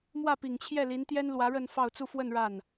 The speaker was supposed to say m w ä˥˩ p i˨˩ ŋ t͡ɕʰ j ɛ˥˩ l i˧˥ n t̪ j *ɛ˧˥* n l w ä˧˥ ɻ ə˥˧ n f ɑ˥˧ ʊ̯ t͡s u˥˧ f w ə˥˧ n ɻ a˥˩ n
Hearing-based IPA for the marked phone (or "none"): ɛ˥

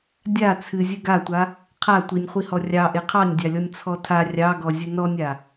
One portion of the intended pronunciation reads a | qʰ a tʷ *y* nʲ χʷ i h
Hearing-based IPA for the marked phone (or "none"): i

